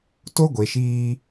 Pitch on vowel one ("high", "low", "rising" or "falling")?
high